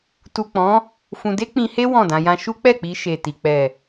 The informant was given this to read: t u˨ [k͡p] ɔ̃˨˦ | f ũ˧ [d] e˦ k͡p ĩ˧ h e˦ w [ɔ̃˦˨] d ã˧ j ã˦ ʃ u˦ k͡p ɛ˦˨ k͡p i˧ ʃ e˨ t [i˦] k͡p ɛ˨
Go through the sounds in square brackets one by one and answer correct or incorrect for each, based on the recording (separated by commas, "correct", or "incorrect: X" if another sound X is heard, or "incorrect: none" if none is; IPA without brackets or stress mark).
correct, correct, correct, incorrect: i˨